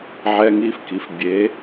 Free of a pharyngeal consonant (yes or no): no